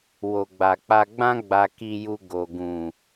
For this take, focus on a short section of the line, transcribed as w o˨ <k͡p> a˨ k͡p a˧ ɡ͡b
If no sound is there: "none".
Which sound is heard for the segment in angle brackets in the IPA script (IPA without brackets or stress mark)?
ɡ͡b